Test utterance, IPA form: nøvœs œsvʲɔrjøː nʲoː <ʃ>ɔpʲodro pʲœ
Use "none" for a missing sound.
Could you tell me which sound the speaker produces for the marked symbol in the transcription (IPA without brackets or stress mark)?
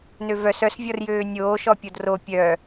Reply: ʃ